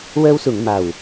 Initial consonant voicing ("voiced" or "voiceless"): voiced